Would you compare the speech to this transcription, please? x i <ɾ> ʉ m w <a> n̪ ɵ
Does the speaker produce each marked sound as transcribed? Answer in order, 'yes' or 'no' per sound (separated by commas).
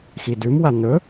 no, yes